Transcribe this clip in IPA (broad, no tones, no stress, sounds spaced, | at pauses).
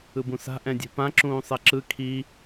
ɯ b ũ s a̤ ʔ ɛ̃ dʲ e̤ p ã ǁ ũː sˤ ɛ ǁ ɯ kʰ i